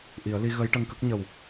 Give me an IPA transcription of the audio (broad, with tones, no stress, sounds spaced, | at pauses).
ʔ i˨˩˦ ə̯ l i˧ ɣ ə˧˥ j ʈ ə˧ ŋ k ə˦˥ k̚ ɲ ə˨˩ w